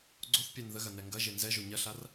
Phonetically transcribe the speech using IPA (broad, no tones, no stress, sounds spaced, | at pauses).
ɡ͡ǀ o θ pʲ æ n ð ə ɣ ɐ n ɛ ŋ ɡ ɐ ʒ e n z ɛ ʒ o ɲ ɐ ɬ a r